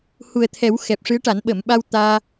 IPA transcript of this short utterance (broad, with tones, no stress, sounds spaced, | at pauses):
h u˨˩ ə̯ t̪ʰ ɛ˨˩˦ w x ɛ˨˩ p̚ ʂ ɨ˧˥ ə̯ ʈ a˨˩˦ n ɓ ə˨˩˨ m ɓ a˧ w t̪ aː˧